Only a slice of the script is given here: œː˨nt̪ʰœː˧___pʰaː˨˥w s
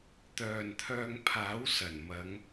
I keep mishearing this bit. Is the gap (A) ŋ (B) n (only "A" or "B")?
A